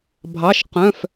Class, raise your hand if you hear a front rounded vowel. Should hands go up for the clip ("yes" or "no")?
yes